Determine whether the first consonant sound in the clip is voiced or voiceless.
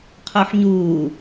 voiceless